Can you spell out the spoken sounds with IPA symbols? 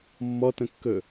mː ɔ t ə̃ kː ɵ

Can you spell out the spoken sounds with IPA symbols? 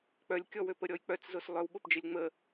k͡p œ lʲ kʲ ɔ w ø p ə ɾʲ ɔ j k͡p œ t͡s z o s lˠ œ w ɓ o p d͡ʒ ə lʲ ŋ͡m ə

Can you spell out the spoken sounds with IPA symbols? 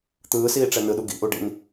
t̪ ɯː s iː ʈ͡ʂ ɛ n ɯ ɗ u ɡ ḭ ʔ u ɖ ḭ n

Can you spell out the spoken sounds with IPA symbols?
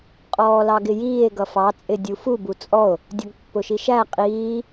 qʼ ɔː l ɑ ɡ ɪ j iː e̯ ɡ ʌ f ɑ t͡sʼ ɪ dʲ u f u b u t͡sʼ ɔ o̯ | dʲ ʌ ɡ pː ʊ ʃ i ʃ æ qʼ iː

